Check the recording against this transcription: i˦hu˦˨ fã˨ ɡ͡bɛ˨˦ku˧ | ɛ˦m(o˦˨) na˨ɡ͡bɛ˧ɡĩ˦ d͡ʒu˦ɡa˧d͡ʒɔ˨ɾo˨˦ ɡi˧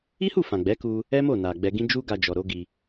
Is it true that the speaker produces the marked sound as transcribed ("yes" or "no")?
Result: yes